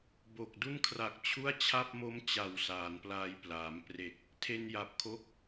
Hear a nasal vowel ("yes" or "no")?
no